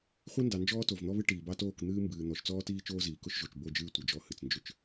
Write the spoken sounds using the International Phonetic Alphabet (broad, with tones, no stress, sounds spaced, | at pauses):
χʷ i˦ n d ɑ˨ n d͡ʒ ɔː˦ t o˨ v n̪ ɔ˦ β ɨ˦ ʈ iː˨ b ɑ˦ t oː˦˨ k n̪ ɨː˦ m b ɨː˨ n̪ ɔ˨ ʃ t͡s ɔː˦ t iː˦ t͡ʃ oː˦ z iː˨ k ʊ˦ ʃ ʒ o˨ t͡ʃ b o˦˨ d͡ʒ ɨː˦ tʷ ɨ˨ d͡ʒ ɔ˦ h ɨ˨ t͡s n d͡ʒ ʏ˦ t͡ʃ